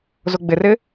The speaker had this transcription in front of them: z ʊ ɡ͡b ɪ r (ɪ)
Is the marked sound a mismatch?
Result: no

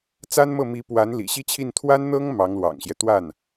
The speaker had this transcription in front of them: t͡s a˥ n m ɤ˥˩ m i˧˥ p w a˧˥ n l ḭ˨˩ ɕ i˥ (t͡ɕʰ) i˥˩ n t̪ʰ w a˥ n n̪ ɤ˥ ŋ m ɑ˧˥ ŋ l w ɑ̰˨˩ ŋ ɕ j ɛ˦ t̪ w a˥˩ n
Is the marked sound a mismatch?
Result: no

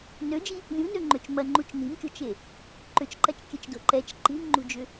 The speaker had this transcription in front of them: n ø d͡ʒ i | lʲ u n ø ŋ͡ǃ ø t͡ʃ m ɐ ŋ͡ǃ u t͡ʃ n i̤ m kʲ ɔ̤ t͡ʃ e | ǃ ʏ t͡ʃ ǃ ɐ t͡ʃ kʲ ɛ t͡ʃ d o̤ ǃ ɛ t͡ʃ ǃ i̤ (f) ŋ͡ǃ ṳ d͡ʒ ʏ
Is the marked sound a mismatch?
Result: yes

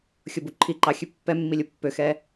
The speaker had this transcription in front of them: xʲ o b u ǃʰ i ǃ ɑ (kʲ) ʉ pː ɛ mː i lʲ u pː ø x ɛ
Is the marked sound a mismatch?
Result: yes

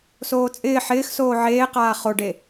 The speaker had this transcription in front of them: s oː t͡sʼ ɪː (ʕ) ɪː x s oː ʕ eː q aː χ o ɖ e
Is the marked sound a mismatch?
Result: yes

